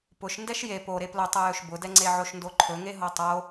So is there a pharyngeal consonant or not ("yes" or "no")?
yes